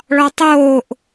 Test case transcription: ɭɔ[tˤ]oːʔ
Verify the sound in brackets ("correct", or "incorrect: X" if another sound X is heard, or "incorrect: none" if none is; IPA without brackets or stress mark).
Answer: correct